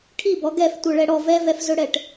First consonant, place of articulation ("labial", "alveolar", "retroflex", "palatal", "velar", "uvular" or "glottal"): retroflex